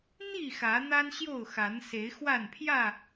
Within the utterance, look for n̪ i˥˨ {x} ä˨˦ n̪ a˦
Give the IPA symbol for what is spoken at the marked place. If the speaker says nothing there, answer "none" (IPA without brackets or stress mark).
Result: x